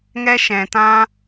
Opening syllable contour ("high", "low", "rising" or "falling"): high